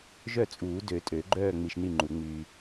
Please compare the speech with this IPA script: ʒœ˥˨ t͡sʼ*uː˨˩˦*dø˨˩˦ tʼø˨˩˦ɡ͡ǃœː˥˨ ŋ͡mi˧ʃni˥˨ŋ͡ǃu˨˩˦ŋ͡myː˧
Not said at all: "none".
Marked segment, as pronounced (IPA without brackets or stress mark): uː˨˩˦